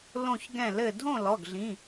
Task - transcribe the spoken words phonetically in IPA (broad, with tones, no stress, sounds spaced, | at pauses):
l õ˥˧ ç ɡ ɛ̃˥˧ l ɘ˥˧ dʱ õ˥˧ l ɔ˧˥˧ ɡ ɮ ĩ˧˥˧